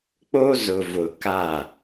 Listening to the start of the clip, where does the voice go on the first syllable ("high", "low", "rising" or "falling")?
high